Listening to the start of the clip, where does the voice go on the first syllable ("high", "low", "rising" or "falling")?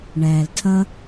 low